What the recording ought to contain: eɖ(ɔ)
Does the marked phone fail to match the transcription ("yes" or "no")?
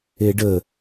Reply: yes